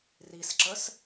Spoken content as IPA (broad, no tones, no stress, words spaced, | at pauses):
risǁəs